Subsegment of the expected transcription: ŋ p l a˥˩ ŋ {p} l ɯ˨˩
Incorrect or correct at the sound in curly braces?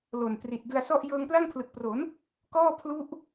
incorrect: pʰ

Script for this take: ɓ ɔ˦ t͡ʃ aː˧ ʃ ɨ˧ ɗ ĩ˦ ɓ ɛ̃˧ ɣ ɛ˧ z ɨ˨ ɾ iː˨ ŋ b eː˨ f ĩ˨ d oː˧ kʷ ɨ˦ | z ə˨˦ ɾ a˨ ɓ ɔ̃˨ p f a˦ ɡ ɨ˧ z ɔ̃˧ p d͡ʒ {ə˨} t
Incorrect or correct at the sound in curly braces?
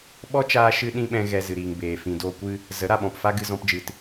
incorrect: ɨ˨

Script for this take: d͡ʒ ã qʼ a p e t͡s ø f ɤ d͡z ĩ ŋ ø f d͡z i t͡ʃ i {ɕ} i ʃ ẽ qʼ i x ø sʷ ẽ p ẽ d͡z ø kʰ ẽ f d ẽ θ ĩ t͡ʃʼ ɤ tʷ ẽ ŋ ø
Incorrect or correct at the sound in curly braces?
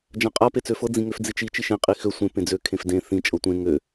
incorrect: t͡ʃ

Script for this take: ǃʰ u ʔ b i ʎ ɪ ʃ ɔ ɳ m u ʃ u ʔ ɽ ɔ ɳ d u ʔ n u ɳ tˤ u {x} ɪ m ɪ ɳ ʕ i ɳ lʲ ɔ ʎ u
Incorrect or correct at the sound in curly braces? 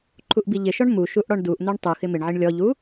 correct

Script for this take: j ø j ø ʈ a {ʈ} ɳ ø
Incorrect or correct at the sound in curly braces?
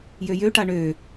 incorrect: none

